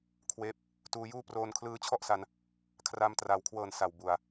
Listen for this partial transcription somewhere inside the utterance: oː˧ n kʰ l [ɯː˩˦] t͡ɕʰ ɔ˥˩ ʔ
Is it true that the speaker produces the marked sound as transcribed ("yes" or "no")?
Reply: no